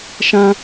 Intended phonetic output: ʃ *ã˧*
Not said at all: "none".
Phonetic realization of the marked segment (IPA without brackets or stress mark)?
ã˧